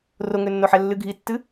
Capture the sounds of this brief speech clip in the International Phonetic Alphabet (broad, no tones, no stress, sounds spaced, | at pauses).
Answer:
r o ŋ ø nː o ħ ɛ lː ɨ ɡʱ i tː ɨ